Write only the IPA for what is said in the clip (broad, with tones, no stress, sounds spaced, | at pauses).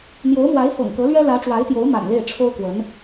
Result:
n̪ j o˧˥ ʊ̯ m w a˧˥ ɪ̯ f ɤ̰˨˩ ŋ k ɤ˧˥ l ɥ ɛ˥ l ä˧˥ ʈ͡ʂ w a˧˥ ɪ̯ t̪ j o˧˥ ʊ̯ m a̰˨˩ n l e˥˩ ɪ̯ ʈ͡ʂʰ o˥ ʊ̯ k w ə˧˥ n